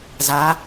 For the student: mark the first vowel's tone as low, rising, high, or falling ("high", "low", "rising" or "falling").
rising